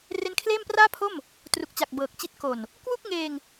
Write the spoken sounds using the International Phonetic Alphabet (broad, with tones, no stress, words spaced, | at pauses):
re˦˥nkʰleː˥˩mpraː˥˩pʰo˥˩m | tru˨˩k̚t͡ɕa˨˩k̚ bɤː˨˩k̚t͡ɕi˦˥t̚ ko˨˩n | kwu˥˩k̚ŋeː˧ŋ